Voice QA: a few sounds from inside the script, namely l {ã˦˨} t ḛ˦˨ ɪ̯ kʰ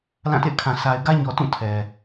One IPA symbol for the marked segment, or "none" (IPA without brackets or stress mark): ã˦˨